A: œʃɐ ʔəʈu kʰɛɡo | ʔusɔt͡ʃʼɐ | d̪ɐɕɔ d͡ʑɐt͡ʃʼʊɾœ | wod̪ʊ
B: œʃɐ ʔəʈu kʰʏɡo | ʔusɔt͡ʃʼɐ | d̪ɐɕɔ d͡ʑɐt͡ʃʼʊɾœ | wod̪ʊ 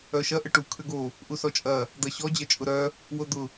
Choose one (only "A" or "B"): B